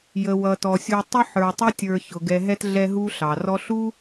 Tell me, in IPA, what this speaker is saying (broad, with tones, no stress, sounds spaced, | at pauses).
j ə˩ w ʌ˩ t ɔ˩ sʲ u˨ tˤ ʊ˥ ħ ə˞˨ tˤ ʊ˥ tʲ ə˞˨ ç ʊ˩ ɡ ɛ˨ ɦ ɛ˦ t ɮ ɛ˦ ɦ u˥ ɬ ɑ˩ r ɔ˥ ɬ u˥